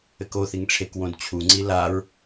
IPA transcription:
ɘkoθiŋ ʈ͡ʂʰekwõd t͡ɕʰuŋ͡ǀi laɹ

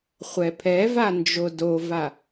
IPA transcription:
χʷɛpʰɛva nd͡ʒodova

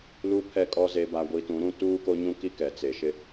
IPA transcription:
lu˨˦ pʰɛ˨ kʼɔ˨ ze˨ba˨ ɡʷi˨tũ˨˦ɾũ˦˨ tuː˦ko˦ɲũ˦ki˦ kɛ˨t͡se˨ʃɪ˦

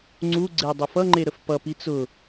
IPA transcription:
ŋ͡ǀuɡ͡ǀe dˤʊfʌŋ͡ǃe ɾəfpʌpi t͡sʊ

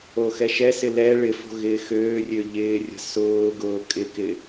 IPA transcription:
oxɛʃɛsɪ lɛ ɭɪfo̤ ɣɪːxøːrʲø ʎɪːrʲə̤ sʊːɡʊː kʼɪkɪ

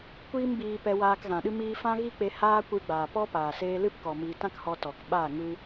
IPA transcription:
kʷiː˦mbiː˧ pɛ˧waː˧k ɣã˨ɗɨ˦miː˦ fã˦ɣi˦k͡pe˧ haː˦ kʷɨ˧ɡ͡baː˨ pɔ˦paː˨ seː˧lɨ˦pkɔ˨ miː˧ tã˦khɔ˧tɔ˨kɓaː˦˨ ŋɨ˦

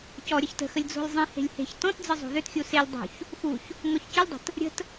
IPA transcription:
cɔ ɾʲəçtə̤xəlʲ d͡zo̤lʲzˤĩhe̤lʲ he̤ç tɔ̃td͡zɯ zˤo̤ðʏtxʲu selʲ dˤo̤ç | xuç | ŋɔçcɯlʲdˤə̤t | ɾʲə̤t

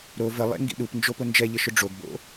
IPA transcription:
ɾo vəlˠḛ ŋɡḭɗupnd͡ʒopʊ nd͡ʒɛʎəʃʊ ɖ͡ʐoɡbo̰

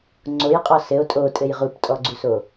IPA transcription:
ŋ͡ǀojqʼɔ sɘo̯ tʼotʼɘj ʁuptʼɔɡ͡ǀuso

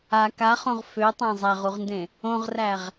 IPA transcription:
a kaχõʁ føtˤæ̃ zˤæʁuʁndẽ | õʁræʁ

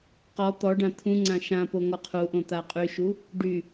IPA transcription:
qɔ t̪ɔɖã t̪ʰũ ŋ͡ǀãʃãpo ŋɔqʰuʔõ t̪aqʼyʃu | ɖy

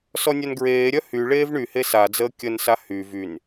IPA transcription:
sɔnʲœnɡɹeːɾʲœ hy ɭeːvɳyhe sad͡zəː kʲənsa hy vyn

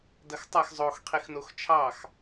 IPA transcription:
dɐxtˤɐx zˤox qʰixnoxt͡ʃʰɑx

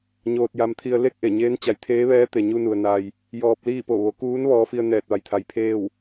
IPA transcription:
ɲoː˧t̚ja˧mt̪ʰi˧ə̯ le˥˨k̚ʔe˧˩ ɲeː˧˥nt͡ɕa˩˧jt̪ʰeː˧˥ʋɛː˧˥ t̪e˩ɲu˧nu˩ə̯ na˩j | jɔː˧p̚liː˥˨ po˧˩ʋo˩˧kuː˧˥n ʋɔː˧fi˧ə̯ nɛː˧˩t̚ʋa˩˧jt̪ʰa˩j pʰeː˥˨w

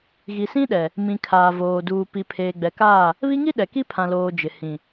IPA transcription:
ɣi˨sĩ˦ɗɛ˨ | mĩ˨kʰaː˨ voː˨ duː˨ pi˨pʰeː˨ ɡ͡bɛ˨kaː˦˨ | βi˦ŋi˦ ɗɛ˨ki˦ pʰã˨loː˨ d͡ʒɪ˨ hĩ˨

